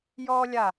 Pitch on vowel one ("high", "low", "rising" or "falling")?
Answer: high